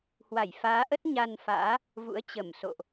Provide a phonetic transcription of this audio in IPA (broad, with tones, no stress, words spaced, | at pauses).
hwa˧˩jfaː˨˦ʔə˦˥t̚ ɲa˧nfa̰ː˧˥ | vṵ˧˥ə̯t͡ɕə˧˩mso̰˧˨ʔ